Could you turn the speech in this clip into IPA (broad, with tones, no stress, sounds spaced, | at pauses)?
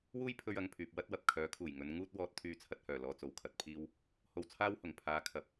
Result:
w uː˥ j pʰ ɵ˥ ɥ ɐ˧ ŋ pʰ yː˨ p̚ w ɐ˥ t̚ w ɐ˨ p̚ kʰ œː˨˥ kʰ uː˨˩ j ŋ ɵ˨˧ n ŋ uː˥ t̚ w ɔː˥ t̚ t̪ʰ yː˥ t͡sʰ ɐ˧ t̚ h œː˨˩ l ɔː˧ t͡s o˨ w kʰ ɐ˨ t̚ pʰ iː˥ w | h o˧ w t͡sʰ aː˥ w h ʊ˨˩ ŋ pʰ aː˨˧ kʰ ɐ˨ p̚